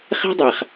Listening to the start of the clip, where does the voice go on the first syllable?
high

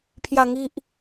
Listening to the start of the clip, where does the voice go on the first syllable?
low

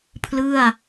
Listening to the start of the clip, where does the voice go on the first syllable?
falling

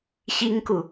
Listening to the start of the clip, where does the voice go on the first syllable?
high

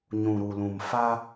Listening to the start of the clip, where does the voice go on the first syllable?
low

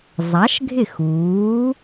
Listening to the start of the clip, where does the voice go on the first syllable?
rising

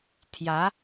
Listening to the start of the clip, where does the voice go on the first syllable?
rising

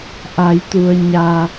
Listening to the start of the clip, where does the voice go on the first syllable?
low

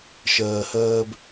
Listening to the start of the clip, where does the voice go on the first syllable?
low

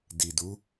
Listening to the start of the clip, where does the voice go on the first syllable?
low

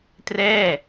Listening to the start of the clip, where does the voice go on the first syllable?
falling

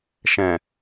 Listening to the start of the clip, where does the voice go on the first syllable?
low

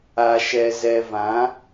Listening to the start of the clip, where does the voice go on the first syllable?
low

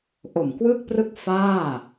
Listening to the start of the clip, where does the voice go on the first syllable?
low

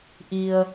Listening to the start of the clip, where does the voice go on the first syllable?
low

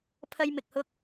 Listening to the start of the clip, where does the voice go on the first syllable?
high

